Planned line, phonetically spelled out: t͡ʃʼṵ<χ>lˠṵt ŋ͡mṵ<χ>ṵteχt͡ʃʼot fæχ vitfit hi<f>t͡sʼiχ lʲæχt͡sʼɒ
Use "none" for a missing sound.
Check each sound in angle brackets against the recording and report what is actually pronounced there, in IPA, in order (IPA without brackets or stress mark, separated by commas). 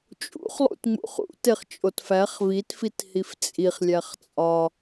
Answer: χ, χ, f